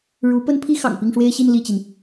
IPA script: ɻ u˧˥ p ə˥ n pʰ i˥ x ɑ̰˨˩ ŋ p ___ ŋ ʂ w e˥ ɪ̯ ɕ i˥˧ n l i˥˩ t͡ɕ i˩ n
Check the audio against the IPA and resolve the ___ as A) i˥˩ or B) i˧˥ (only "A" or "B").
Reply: A